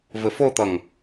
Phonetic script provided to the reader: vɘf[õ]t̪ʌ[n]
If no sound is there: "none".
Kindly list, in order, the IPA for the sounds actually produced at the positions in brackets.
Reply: o, ŋ

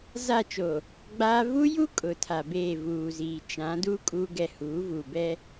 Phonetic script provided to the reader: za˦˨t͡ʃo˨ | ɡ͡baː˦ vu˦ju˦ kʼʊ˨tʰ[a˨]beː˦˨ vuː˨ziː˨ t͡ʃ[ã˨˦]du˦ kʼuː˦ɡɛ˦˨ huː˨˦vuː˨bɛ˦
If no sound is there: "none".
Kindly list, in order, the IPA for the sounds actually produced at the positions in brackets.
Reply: a˨, ã˨˦

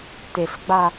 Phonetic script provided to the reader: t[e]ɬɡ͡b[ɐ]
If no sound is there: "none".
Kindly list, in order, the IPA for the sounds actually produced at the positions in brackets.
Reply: e, a

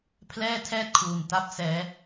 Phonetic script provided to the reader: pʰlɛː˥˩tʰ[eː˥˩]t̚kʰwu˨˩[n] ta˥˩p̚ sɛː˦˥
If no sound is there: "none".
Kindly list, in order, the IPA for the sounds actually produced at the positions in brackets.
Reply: ɛː˥˩, n

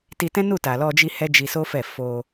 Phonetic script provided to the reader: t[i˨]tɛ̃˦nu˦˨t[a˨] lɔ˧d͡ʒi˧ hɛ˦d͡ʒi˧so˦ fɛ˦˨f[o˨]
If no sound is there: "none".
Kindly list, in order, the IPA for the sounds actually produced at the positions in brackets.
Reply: i˧, a˨, o˧

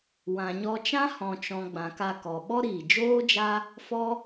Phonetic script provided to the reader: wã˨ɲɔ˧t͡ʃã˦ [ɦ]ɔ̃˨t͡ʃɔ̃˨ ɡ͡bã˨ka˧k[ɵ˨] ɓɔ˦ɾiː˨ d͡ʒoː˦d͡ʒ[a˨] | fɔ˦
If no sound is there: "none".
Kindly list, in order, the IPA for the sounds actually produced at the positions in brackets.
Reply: h, ɔ˨, a˦

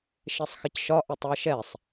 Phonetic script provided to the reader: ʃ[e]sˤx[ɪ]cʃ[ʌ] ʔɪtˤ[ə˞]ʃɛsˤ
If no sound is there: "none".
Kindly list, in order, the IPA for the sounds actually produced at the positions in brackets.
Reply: e, ɪ, ɒ, ə˞

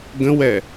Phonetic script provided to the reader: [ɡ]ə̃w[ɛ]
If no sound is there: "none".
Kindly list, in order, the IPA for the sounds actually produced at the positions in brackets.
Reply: ɡ, ɛ

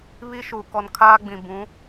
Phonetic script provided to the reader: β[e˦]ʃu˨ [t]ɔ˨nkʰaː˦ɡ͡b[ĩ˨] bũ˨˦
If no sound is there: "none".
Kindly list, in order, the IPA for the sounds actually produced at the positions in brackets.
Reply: i˦, k, ĩ˨

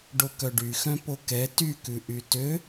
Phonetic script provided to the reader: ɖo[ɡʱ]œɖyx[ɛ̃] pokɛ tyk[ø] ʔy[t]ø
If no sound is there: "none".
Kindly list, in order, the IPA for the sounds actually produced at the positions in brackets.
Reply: k, œ̃, ʉ, t

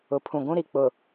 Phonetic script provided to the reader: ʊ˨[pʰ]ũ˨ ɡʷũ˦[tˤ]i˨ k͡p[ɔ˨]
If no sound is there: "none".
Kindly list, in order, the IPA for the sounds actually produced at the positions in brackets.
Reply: pʰ, ɾ, ʊ˨

